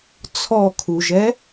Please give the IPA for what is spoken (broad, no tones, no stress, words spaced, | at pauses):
t͡sʰɔkʰuʒɛ